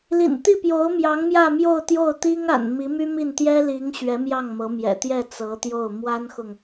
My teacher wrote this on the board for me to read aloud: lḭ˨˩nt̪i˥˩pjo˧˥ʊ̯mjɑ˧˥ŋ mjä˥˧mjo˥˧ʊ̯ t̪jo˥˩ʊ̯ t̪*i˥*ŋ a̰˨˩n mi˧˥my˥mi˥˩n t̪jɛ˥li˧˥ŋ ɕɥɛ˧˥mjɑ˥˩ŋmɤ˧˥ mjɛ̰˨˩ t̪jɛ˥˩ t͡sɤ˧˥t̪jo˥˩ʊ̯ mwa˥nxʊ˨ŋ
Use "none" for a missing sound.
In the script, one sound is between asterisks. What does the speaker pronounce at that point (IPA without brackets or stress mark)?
i˥